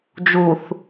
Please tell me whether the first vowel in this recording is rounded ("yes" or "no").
yes